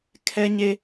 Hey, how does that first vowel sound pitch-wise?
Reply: high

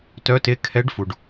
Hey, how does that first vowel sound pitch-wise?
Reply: rising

